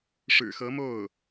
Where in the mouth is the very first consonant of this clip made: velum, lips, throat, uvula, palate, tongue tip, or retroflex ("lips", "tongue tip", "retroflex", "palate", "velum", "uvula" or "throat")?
retroflex